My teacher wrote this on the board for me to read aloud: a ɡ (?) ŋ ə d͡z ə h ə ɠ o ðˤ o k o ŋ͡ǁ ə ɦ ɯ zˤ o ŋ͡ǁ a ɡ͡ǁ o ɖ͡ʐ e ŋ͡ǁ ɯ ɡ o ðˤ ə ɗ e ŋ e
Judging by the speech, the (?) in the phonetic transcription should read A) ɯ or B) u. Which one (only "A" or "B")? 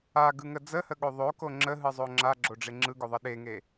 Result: A